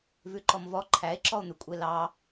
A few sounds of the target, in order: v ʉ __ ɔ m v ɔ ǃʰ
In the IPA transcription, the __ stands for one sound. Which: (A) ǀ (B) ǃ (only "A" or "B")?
B